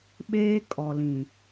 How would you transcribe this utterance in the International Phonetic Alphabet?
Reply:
ɓ eː˦ kʼ ɔ˨ l ĩ˨

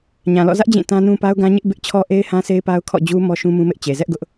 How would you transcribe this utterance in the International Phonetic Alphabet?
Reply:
ɲ ã˨ l ɔ̰˦˨ z ä˦ ʔ d͡ʑ ĩ˦˨ t ã˦ n ũ˦ p a˦ ʊ̯ ɡ ã˦ ɲ ɪ˦ ʔ b ɪ˦ ʔ t͡ɕʰ ɔ˦ ʔ e˦ ɪ̯ h ã˦ sʰ e˦ ɪ̯ p a˦ ʊ̯ kʰ ɔ̰˦˨ d͡ʑ u˦ m ɔ˦ ʃ ũ˦ m ũ˦ m ɪ˦ ʔ t͡ɕ e˨ z ɛ˦ ʔ ɡ ʊ˦ ʔ

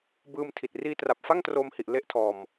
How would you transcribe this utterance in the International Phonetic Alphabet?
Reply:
b ɯː˧ m tʰ i˨˩ t̚ r iː˧ t r a˨˩ p̚ f a˥˩ ŋ t r oː˧ m h i˨˩ ʔ l e˥˩ ʔ tʰ ɔː˧ m

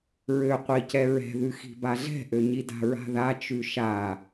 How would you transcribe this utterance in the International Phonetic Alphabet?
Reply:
ɹ ø qʷ i c ɛ ɹ ɛ̤ ð ʉ x i̤ b a ɮ ɛ̤ ʔ ø ɲ i d a̤ ɹ a̤ ð a t͡ʃ ʉ ʃ a

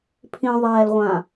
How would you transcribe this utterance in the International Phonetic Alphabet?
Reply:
pʰ ĩ ðˤ ɛː l ʁʷ ã

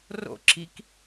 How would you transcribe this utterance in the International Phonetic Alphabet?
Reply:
r o̰ ǁ i k

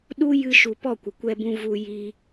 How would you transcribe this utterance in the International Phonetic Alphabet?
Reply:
ɗ u˦ j ɨ˧ ʃ u˨ p ɔ˦˨ kʷ ə˨ kʷ ɛ˧ b ũ˧ v u˧ j i˧

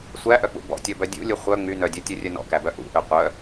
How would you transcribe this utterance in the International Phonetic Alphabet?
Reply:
sʷ æ ʔ œ k͡p ṵ b ɔ̰ tʲ ɔ b œ dʲ ṵ lʲ u χʷ œ ŋ͡m y n œ dʲ œ tʲ u rʲ œ n ɔ̰ k æ b œ ʔ ṵ ʔ ø qʷ œ

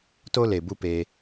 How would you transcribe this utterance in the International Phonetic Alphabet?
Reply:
t o˦ l e˨ b u˦ p eː˧

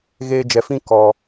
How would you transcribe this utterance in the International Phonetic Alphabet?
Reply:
ɣ eː˧ d͡ʒ ɛ˨ f ĩ˦ k ɔ˨

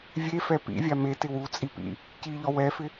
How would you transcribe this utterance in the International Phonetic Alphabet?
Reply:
vʲ e f ɛ p ḭ vʲ a m e t ɪ w u t͡sʼ i p ḭ | c i ʎ ɔ w ɛ f ɪ

